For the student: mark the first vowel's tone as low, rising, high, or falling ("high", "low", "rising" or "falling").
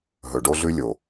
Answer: low